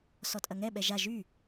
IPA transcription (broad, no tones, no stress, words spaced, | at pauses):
sɔtʼɐŋɛ ɓɛʒa ʒy